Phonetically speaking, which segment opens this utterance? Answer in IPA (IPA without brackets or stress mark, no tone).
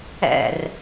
ɛ̰